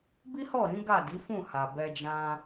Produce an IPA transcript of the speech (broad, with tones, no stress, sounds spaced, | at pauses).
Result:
b i˦ h ɔ˦˨ ɾ ĩ˨˦ ɡ a˦˨ d i˨˦ f ũ˦˨ h a˨ b ɛ˧ d͡ʒ ã˧